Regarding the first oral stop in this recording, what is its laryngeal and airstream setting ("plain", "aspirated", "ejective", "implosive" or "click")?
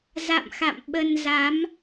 implosive